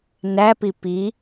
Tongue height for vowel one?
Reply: low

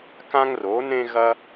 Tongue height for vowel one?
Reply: low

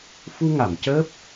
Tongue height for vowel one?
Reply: high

